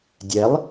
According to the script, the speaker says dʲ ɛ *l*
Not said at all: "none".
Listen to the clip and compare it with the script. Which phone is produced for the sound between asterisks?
lˠ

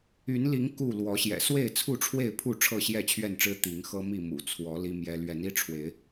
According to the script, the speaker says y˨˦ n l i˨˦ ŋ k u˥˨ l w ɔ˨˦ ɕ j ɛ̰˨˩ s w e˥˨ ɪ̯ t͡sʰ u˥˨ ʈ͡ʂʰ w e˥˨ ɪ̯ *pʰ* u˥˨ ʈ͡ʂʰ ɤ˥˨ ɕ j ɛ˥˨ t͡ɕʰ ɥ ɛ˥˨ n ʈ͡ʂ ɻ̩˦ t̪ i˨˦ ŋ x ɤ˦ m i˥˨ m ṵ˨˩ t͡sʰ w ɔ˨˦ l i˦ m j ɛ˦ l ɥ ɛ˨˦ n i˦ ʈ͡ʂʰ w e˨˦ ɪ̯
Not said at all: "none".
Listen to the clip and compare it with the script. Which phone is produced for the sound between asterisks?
pʰ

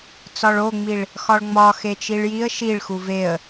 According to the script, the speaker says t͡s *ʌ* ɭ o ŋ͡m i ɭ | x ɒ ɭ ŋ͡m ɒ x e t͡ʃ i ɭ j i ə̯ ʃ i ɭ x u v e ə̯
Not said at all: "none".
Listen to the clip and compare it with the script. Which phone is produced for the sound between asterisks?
ɒ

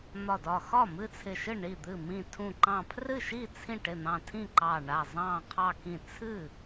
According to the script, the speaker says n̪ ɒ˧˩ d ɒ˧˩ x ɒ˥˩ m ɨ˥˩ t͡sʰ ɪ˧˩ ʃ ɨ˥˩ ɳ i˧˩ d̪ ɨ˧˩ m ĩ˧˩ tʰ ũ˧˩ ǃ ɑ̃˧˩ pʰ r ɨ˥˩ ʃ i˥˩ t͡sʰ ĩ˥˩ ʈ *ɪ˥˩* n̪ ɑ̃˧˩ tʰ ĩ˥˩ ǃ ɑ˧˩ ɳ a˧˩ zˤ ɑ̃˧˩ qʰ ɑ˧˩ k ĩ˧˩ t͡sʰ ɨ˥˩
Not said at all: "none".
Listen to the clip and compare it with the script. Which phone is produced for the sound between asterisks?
ɪ˧˩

